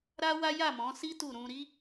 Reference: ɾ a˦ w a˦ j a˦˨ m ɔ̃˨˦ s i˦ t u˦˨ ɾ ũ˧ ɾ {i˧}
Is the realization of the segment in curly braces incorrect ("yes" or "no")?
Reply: yes